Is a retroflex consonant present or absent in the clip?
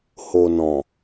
absent